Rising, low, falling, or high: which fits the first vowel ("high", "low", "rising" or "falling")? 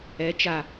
rising